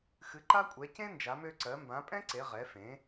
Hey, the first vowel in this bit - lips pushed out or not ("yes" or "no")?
no